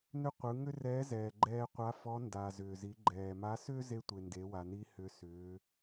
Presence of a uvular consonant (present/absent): present